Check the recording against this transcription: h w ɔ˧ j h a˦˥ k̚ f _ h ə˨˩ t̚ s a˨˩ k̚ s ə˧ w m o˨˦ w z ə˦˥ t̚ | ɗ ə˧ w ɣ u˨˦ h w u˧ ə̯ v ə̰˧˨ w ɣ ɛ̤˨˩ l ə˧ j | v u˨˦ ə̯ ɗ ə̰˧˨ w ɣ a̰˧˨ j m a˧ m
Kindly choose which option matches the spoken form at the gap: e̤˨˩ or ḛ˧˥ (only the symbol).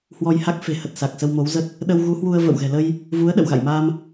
e̤˨˩